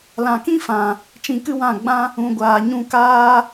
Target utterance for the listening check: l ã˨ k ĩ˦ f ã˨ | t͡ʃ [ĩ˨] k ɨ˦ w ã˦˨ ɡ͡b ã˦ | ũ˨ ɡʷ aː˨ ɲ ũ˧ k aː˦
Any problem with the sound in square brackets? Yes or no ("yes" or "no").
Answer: yes